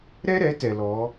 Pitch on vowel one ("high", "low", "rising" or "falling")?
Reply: high